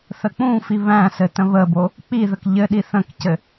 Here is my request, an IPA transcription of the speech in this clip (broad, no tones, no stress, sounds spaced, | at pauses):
θ ə k͡p ũ f i β æ̃ s ɘ t ə̃ β ə b o | k͡p i ð ə k ʎ ɘ ɗ i θ ə̃ k c ɘ